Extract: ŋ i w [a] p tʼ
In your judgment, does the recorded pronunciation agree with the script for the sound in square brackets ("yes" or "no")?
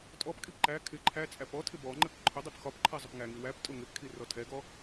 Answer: no